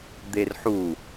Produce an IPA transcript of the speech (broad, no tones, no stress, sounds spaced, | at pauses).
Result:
d̪ e r ħ u